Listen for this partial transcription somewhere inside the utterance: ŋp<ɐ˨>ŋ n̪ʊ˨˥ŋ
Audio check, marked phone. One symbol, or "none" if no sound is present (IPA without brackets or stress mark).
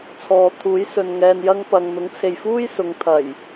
ɐ˨